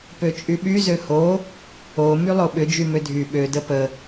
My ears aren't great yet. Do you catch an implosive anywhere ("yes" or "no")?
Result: yes